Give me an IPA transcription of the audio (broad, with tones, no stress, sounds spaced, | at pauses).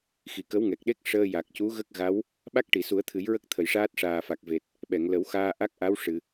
x i˨˩ k ə˧˥ w ŋ ɛ˨˩ k̚ ɗ e˦˥ k̚ ʂ əː˧ j a˨˩ k̚ c u˧˥ ɣ ə˦˥ k̚ ɣ a˧˥ w | ɓ a˦˥ k̚ ʈ i˨˩˨ s u˨˩˦ ə̯ t̪ʰ ɨ˨˩˦ j ɹ ə˦˥ k̚ t̪ʰ ə˨˩˨ j ʂ aː˦˥ t̚ ʂ aː˨˩ f a˨˩ k̚ v e˨˩ t̚ | ɓ ɛ˨˩˨ ŋ l ə˨˩˦ w x aː˧ ʔ a˦˥ k̚ ʔ a˧˥ w ʂ ɨ˨˩˨